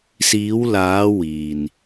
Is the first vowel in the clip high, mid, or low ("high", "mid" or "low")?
high